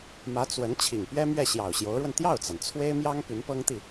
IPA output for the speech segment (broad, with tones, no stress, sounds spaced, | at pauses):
m ä˧˥ t͡s w ə˧˥ n t͡ɕʰ i˨˩ ŋ p ɥ ɛ˥ m ɥ ɛ˥˩ ɕ j ɑ˨˩ ʊ̯ ɕ j o˧˥ ʊ̯ ɻ w ə˧ n t̪ j ɑ˥˩ ʊ̯ t͡s a˩ n t͡sʰ w e˥ ɪ̯ m j ɑ˥ ŋ p y˧˥ n p ɤ˥ ŋ t̪ i˥˩